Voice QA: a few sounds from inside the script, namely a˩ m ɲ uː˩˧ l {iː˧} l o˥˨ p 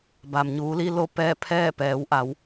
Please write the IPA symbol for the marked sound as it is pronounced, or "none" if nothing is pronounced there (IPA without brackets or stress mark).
i˧